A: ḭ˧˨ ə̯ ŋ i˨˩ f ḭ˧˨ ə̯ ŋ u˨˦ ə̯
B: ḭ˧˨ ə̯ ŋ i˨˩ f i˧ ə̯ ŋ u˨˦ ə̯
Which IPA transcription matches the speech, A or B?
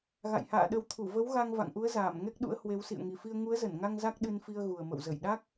B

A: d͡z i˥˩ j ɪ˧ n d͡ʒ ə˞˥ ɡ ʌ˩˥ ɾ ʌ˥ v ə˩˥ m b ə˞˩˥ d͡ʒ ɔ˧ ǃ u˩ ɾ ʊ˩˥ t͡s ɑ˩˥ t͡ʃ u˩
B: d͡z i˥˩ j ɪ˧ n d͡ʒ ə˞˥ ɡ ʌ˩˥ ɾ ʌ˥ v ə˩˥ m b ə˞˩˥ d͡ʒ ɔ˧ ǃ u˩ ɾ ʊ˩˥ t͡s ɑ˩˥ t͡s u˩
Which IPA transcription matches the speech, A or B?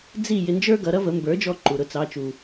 A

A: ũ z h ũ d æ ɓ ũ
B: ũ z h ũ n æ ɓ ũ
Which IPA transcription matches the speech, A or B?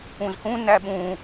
B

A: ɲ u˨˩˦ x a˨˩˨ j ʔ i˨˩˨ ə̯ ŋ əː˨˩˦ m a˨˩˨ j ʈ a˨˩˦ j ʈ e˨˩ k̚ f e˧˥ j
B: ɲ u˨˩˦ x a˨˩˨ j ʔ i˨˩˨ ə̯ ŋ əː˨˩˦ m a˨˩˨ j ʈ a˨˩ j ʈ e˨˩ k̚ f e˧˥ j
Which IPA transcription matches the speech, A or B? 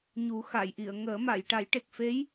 A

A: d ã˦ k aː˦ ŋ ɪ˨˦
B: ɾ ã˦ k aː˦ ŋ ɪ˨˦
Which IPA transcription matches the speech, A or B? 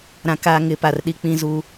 B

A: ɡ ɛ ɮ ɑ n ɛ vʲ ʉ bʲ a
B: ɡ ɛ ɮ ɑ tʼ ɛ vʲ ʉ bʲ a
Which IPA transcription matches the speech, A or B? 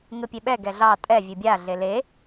B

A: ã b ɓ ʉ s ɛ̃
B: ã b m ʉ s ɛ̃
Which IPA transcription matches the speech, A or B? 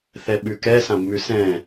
B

